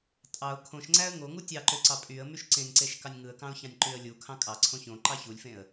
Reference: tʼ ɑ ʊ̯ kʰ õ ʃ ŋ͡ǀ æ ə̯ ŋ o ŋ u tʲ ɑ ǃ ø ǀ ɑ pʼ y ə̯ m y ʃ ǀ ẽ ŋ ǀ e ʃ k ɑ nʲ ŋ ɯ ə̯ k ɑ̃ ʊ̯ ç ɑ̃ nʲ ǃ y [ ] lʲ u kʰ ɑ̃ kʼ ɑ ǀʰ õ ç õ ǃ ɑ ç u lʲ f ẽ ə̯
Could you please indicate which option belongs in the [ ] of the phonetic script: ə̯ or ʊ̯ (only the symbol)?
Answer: ə̯